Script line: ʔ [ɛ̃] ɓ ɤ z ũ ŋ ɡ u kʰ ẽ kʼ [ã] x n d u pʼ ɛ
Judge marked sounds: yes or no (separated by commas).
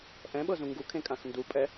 yes, yes